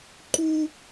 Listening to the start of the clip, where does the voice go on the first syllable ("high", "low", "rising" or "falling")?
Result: high